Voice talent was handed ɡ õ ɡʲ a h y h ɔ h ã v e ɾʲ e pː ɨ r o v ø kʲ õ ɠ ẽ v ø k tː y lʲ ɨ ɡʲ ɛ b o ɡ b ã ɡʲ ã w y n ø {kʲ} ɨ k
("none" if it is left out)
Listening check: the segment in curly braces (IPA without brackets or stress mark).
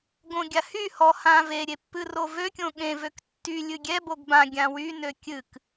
kʲ